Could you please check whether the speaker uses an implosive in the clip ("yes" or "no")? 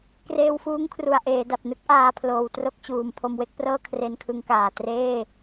no